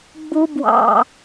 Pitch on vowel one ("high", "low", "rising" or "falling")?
high